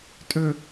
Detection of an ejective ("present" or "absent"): present